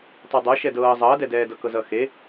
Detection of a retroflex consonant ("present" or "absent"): absent